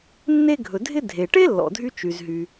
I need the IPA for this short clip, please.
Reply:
nː e˥ ɡʱ ɵ˩ dʱ ɪ˥ dʱ e˩ ʈ e˥ lː ɔ̰˩ dʱ y˥ t͡ʃ y˩ z ɦ y˩

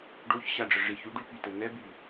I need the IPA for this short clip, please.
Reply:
ɖ o ç ɕ a ɖ͡ʐ ə ʐ i ç y ɖ y p y t ə n ɛ b y

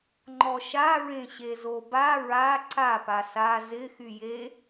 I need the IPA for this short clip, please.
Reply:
ŋ͡ǃ ɔ ʃ a ɹ ẽ ɕ e z o b a ɹ a ǀ a p a s a z ɪ x y j e

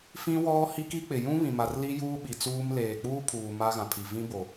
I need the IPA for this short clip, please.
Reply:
f ĩ˦ w ɔ˦ h i˦ k i˦ k͡p ɪ˨ j ũ˦ β ĩ˨ m a˨ r l i˦ j uː˦ ɓ i˨ t͡s uː˦ m l eː˨ k͡p uː˦ pʰ uː˨ m a˦ ɣ ã˨ pʰ i˨ v ĩ˦ b o˨

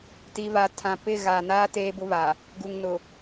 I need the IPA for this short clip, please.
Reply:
t i˨ β a˨ tʰ ã˨ p ɪ˦˨ ɣ a˨ n aː˦ t eː˦ b ʊ˦ β a˨ | ɡ u˨ ŋ n ʊ˨

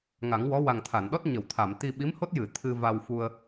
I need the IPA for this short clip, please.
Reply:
ŋ a˨˩˦ ŋ w ɔ˧˥ w a˨˩ ŋ t̪ʰ a˨˩˨ n ɗ ɔ˦˥ t̚ ɲ ə˨˩˨ w t̪ʰ a˨˩˨ m t̪ i˧ ɓ i˧˥ m h o˦˥ t̚ j ɨ˨˩˨ t̪ʰ ɨ˧ v a˧ w f u˧ ə̯

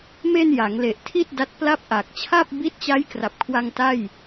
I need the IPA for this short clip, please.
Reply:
m e˧ n j a˩˦ ŋ l e˨˩ ʔ tʰ i˥˩ t̚ d a˦˥ t̚ p l a˥˩ p̚ ʔ a˨˩ k̚ t͡ɕʰ a˥˩ p̚ b iː˦˥ t̚ t͡ɕ a˦˥ j k r a˨˩ p̚ kʰ w a˧ ŋ t a˥˩ j

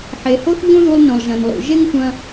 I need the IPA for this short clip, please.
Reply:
ħ e˩ h o˥ θ ʎ õ˥ ð u˧ lˠ n õ˩ lˠ ʒ ɐ̃˩ n lˠ ṵ˩ ʒ e˥ ŋ tʷ ɐ̃˧

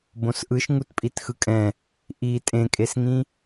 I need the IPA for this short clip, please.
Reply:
b õ s ʔ ɯ ʃ ŋ u t pʼ i t x ɯ kʼ ɛ̃ | ʔ i tʼ ẽ kʼ e s ŋ ĩ

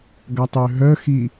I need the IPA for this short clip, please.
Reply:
ɡ a tˤ ø ɦ œ x i

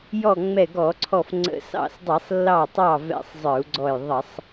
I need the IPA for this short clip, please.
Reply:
j ɔ˧˩ ŋ͡m ɛ˧˩ ɡ ɔ˧˩˧ ǀʰ ɔ˧˩ f ŋ͡ǀ ə̰˧˩˧ s ɑ̰˧˩ s dˤ i˧˩˧ sˤ lː ɑ˧˩ tˤ ɑ˧˩ v ɛ̰˧˩˧ sˤ zˤ ə˞˧˩˧ u̯ ɡ͡ǀ ɔ˧˩ j ðˤ ə˧˩˧ sˤ

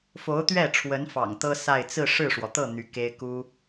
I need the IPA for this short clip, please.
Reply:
f o˧˥ ʊ̯ t̪ ɥ ɛ˥˩ ʈ͡ʂʰ w ə˧˥ n f ɑ̰˨˩ ŋ t̪ ɤ˥ s a˥˧ ɪ̯ t͡s ɹ̩˥˧ ʂ ɻ̩˥˩ ʂ w ɔ˩ t̪ ɤ˥˩ n̪ y˧˥ k e˥ ɪ̯ k u˥

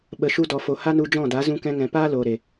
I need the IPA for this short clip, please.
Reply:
ɓ ə˨ ʃ u˧ d ɔ˨ f o˨ h a˦ n u˧ d͡ʒ ɔ̃˦˨ d a˨˦ z ũ˧ k ɛ̃˧ ŋ ɛ̃˨ p aː˦ l oː˨ ɾ e˨

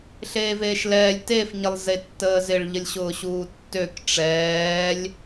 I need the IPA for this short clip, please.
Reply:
ɬ eː v eː ʃ l ɛː lʲ t e f ɲ ɪ lˠ z e tː əː z ɪ ɭ ʎ ə lʲ ɕ ʊː ɕ uː tː ø k ʈ͡ʂ ɛː lʲ

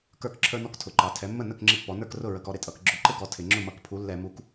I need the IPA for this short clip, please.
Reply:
k ə˞˥˩ k ǁʰ ə˞˦ n ɔ˦ k tʰ ʊ˩˥ ǃ ɑ˩˧ tʰ ɛ˩˥ mː ə˥˩ n ə˥˩ k ŋ͡ǁ ɪ˦ pː ɔ˩˥ n ə˞˥˩ k r ʊ˥˩ ɹ ə˧˩˧ k ɔ˦ ɾ ɪ˩˥ tʼ ʌ˧˩˧ k ɡ͡ǁ ʊ˧˩˧ ǃ ɪ˦ ɡ ɔ˩˥ tʰ ɪ˧˩˧ ŋ͡ǁ ʊ˥˩ m ʌ˧˩˧ k pʰ u˩˥ lː ɛ˧˩˧ m u˩˥ k

